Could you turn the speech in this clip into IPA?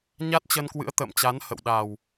ɲ a˦˥ t̚ t͡ɕ ə˧ n k w ɨ̰˧˥ ə̯ t̪ ə̰ː˧˨ m t͡ɕ a˨˦ n h ə̰˧˨ w ɗ a˨˩ w

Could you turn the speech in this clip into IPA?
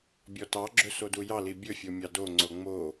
bʲ ɔ t ɑ ɡ͡ǁ ɵ s o d u j ɑ l i bʲ ɵ fʲ o mʲ ɑ d o ŋ͡ǀ o ŋ͡m o

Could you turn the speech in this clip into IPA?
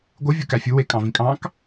ɡʷ ɯ vʲ u k æ fʲ u w e kʼ ɑ̃ v ĩ kʼ ɑ̃ k

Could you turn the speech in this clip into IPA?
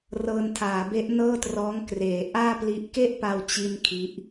r ɤː˧ n tʰ aː˩˦ b e˦˥ ʔ n ɤː˥˩ t r ɔː˦˥ ŋ k r eː˩˦ ʔ aː˥˩ p l i˦˥ ʔ k e˥˩ ʔ p a˧ w t͡ɕ i˥˩ n kʰ i˦˥ ʔ

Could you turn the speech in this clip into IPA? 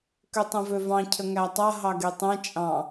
k ø tˤ ɛ̃ v ø v ɑ̃ cʰ ə ŋ æ tˤ a ɦ ɑ ɡ e tˤ ɛ̃ t͡ʃʼ ɑ̃

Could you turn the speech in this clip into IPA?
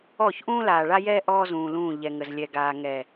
ɔː˦˨ ç ʔ ũː˦ l aː˨ ɭ a˦ j ɛː˦ ʔ ɔː˦ z ũː˨ l ũː˦˨ ʎ ɛ˨ ŋ ə˨ z lʲ ɛ˨ ɡ aː˨ ŋ ɛ˨

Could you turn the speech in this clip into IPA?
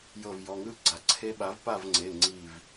j ɤ˧˩ v j ɔ˩˧˩ ŋ ɯ˥˨ ɡ͡ǀ a˩ ǀʰ e˧˥ ɓ a˩˥ v p a˥˨ v ŋ͡ǀ e˩˧˩ ŋ͡ǀ i˧˩ v

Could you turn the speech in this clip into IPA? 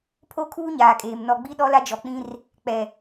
pʰ o˦ kʰ uː˦ ɲ aː˨ kʼ eː˨ m n ɔ˨ ɡ͡b i˦ ɗ ɔ˦ l a˦ d͡ʒ ɔ˨ k͡p ĩ˦ r | k͡p ɛ˨

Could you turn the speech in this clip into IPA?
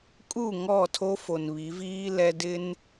kʼ u˦˨ ŋ ɔ˦˨ tʰ o˦ f o˨ n β i˨˦ v iː˦ l ɛ˦ d ɪ˦ n

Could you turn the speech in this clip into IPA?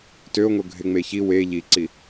t ø o̯ ŋ o ɡʱ e ŋ͡m e ç i w e ʎ i ǀ i

